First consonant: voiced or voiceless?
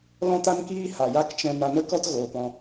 voiced